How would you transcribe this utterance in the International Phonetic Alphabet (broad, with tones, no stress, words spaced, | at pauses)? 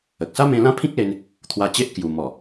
ə˨k̚sa˦mẽ˧ lã˦pʰĩ˦k̚le˧n | t̪ʰwa˧t͡ɕe˦ʔ kju˨˩ mɔ˨˩